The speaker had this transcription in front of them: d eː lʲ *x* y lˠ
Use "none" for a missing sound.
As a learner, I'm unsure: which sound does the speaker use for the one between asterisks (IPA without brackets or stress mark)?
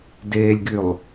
ɡ